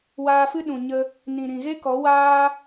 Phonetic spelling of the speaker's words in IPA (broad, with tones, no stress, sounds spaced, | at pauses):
w aː˧ f ɨ˦ ɗ ũ˨ ɲ ə˧ | n ĩ˨ ɾ ĩ˨ ɣ e˦ k ɔ˨˦ w aː˦